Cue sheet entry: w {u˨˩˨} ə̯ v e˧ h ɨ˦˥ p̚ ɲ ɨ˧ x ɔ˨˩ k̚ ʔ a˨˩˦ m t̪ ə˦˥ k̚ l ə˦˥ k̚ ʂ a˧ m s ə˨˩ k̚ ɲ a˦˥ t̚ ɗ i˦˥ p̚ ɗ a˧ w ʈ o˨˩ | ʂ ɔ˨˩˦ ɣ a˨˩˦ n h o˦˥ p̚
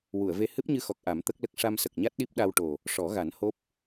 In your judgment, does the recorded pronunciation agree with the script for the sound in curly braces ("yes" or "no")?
yes